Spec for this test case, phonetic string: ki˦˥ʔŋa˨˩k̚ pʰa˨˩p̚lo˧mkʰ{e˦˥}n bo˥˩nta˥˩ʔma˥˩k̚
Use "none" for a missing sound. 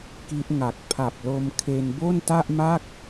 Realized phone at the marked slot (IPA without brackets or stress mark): e˧